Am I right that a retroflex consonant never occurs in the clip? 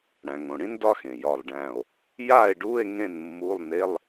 no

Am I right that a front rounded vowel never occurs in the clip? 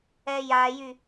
no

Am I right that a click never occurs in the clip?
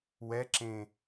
no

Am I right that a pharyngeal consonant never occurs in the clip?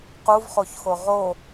yes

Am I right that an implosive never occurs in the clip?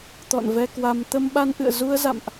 no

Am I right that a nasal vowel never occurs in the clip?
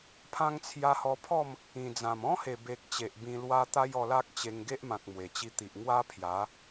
no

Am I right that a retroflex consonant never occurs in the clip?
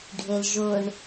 no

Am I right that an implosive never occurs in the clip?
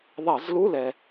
yes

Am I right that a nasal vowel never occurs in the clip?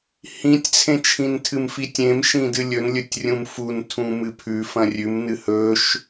no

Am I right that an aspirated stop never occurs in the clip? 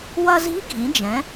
yes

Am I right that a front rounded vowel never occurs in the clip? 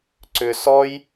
no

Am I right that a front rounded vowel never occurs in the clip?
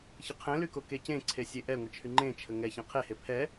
no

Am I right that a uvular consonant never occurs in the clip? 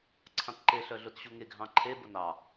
yes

